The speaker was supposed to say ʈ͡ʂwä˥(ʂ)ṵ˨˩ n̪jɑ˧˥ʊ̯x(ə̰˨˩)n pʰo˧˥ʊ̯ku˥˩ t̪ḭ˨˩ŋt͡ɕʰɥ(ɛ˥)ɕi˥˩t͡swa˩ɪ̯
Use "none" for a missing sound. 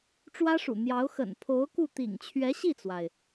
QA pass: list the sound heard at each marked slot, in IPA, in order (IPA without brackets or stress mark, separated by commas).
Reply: ʂ, ə̰˨˩, ɛ˧˥